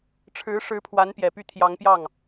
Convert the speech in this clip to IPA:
ʈ͡ʂʰ ɻ̩˧˥ ʂ ɻ̩˧˥ pʰ w a˧˥ n p j ɛ˨˩ p y˥˩ t̪ʰ j ɑ˧˥ ŋ p j ɑ˥˩ ŋ

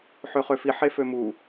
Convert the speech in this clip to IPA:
ħ ø χ ø f i ħ e f ø m u

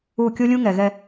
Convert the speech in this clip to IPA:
u˦˨ kʲ o˦ lʲ ũ˦ ŋ ɛ˨ ɣ ɛ˦

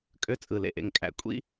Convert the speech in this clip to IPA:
kʼ ø˦ t͡sʼ ɯ˨ l ḛ˨ ʔ ḛ˨ ŋ kʼ æ̰˨ kʷʼ ḭ˦

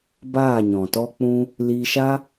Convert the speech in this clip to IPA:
b aː˦˨ ɲ ɔ̃˨ t ɔ˧ k͡p ũ˧ | l iː˧ ʃ a˦

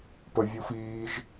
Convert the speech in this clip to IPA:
p ə vʲ u f iː ʒ

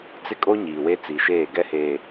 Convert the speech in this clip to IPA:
t͡s ɪ˦ kʼ o˦ ɲ iː˨ w e˦ t͡s i˨ ʃ eː˦˨ ɡ ɛ˦ h eː˨

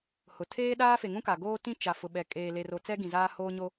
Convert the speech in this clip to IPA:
h ʊ˨ tʰ eː˦ ɗ aː˦ f e˨ ŋ ũ˦ k a˨ ɡ oː˦ t ĩ˦ t͡ʃ a˨ f ʊ˨ ɓ ɛ˨ kʼ eː˨ l e˨ r o˨ t͡s ɛ˦ ɡ ĩ˨ z aː˦ h oː˦ ɲ o˦

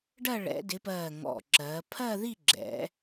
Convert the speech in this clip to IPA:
ɖ ɜ˥˧ ɭ ɛ̰˨˦ d ɪ˨˦ p ɜː˧˩ ŋ ɔ̰˧˩ ǁ ɜː˨˦ pʰ ɜ˥˧ ð i˥˧ ɡ͡ǁ ɛ̰˨˦

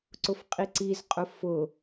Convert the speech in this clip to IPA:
ǀ ʊ f qʼ i ǀ i z qʼ ʊ f ʊ

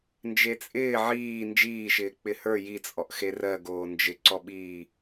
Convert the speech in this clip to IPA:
n d͡ʒ e t͡sʼ ɪː ʕ iː n d͡ʒ iː ʃ ɪː k͡p ɪ h ə˞ j i t͡sʼ ɔ ʔ x e r ɜ ɡ oː n d͡ʒ ɪ ǀ ɔ ɓ iː

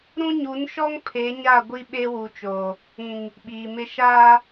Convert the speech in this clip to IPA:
ɾ ũ˦ ɲ u˨˦ n ʃ ɔ˦ ŋ pʰ e˨˦ ɲ a˦˨ ɡʷ i˦ ɓ e˦ w u˨ t͡ʃ oː˨ | ĩ˨ ŋ | ɓ iː˨ m ɪ˦ ʃ aː˦

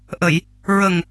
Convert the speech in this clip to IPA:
ʔ ə˨˩˨ j | ɹ ə˨˩ ŋ

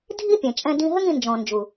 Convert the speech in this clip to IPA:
dʱ i˦ pʲ ẽ˨ t͡ʃʼ ɛ̃˧ d ĩ˧ ɦ ɘ˦ ŋ ĩ˧ n d͡ʒ ɔ̃˨ n d͡ʒ u˨

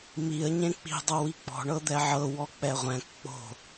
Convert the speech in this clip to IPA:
m i ə̯ ɲ ẽ k͡p i̤ dˤ o w i k͡p ɔ̤ ɳ ɤ d̪ ɛ ʕ ɤ w ɔ k͡p ɛ ʁʷ ɛ̃ k k͡p o̤

